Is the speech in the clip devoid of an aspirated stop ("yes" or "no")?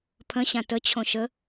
no